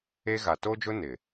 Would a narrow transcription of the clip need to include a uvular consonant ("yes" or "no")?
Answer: no